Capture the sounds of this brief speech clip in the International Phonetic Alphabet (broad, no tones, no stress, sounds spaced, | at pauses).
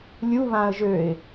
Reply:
lʲ u β ã ə̯ ʒ ø ɪ̯